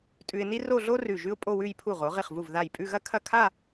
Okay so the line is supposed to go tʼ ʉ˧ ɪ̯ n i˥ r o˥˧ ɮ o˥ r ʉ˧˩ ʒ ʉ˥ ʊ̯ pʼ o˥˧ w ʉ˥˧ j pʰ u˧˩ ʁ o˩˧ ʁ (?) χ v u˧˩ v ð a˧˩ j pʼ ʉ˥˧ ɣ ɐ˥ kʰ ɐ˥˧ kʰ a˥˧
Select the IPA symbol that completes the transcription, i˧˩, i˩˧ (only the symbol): i˧˩